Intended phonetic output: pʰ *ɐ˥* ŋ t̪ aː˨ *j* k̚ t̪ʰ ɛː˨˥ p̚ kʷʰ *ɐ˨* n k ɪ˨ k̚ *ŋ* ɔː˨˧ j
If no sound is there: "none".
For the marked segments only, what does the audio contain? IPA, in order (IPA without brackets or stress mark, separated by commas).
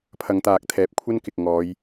ɐ˨˧, none, ɐ˥, ŋ